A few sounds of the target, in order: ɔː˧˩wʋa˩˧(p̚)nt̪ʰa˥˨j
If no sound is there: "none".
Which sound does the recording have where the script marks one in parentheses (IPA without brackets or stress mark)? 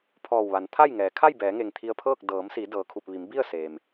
none